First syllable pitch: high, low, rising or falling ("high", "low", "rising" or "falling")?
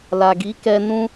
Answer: low